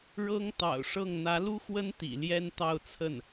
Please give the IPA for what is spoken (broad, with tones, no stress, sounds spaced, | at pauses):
ɻ ɤ˥ ŋ t̪ ɑ̰˨˩ ʊ̯ ʂ ɤ˥˩ ŋ n̪ ä˧˥ l u˥ x w ə˥ n t̪ ḭ˨˩ l j ɛ˥ n t̪ ɑ˥˧ ʊ̯ t͡sʰ ə˥˩ n